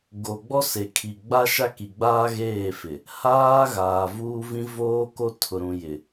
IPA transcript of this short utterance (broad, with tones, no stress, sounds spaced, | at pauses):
ɡ o˨ ɡ͡b ɔ˦ s e˨ kʰ i˨ ɡ͡b a˦ ʃ a˦ k i˨ ɡ͡b aː˦ ɣ eː˦˨ f ɪ˨ | h aː˦ ɣ aː˨ v uː˦ v ĩ˦ v oː˦ k o˦ tʰ ʊ˨ ɾ ũ˨ j ɪ˨